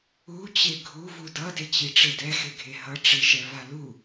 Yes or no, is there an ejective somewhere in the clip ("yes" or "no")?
no